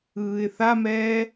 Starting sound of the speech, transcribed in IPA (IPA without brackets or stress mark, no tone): ɯː